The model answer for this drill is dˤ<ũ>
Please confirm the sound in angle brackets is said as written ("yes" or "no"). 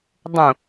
yes